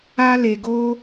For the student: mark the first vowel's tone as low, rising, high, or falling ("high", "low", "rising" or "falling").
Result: high